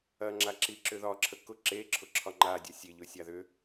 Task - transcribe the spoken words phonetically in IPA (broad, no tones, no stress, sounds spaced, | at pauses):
ɐ ŋ͡ǁ a ǁ i ǁ ʏ ð ɒ ǁʰ ə k ʊ ǁ e ǁʰ ʊ ǁʰ ɒ ŋ͡ǃ a dʲ ɒ sʲ e ʎ ʊ sʲ a ð ʏ